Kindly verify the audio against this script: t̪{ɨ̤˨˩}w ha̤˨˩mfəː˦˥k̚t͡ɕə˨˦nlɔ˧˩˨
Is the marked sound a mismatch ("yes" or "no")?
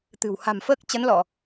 no